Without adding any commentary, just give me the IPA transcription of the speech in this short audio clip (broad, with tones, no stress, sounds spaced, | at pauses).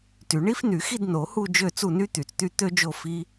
t y˨˩˦ ɳ i˦˥ f n y˨˩˦ x i˦˨ d n o˨˩˦ h u˦˨ d͡ʒ ø˦˨ t͡s u˦˨ n y˦˥ t̪ y˨˩˦ t͡s t̪ y˦˨ t̪ ø˦˥ d͡ʒ o˦˨ f i˦˥